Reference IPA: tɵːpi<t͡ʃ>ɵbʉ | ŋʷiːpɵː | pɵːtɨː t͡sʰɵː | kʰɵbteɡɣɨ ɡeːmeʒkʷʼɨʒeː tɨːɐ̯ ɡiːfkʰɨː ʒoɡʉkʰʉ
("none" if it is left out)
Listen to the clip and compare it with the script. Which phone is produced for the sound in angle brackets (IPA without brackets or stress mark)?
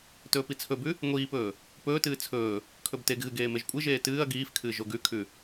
t͡sʰ